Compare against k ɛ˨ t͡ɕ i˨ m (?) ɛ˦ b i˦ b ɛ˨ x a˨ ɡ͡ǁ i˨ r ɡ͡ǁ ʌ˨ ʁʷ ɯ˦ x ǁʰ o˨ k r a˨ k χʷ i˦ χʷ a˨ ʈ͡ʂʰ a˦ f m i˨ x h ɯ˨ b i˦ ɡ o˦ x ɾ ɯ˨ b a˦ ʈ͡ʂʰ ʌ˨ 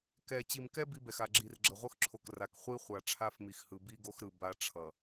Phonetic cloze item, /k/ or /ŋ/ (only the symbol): k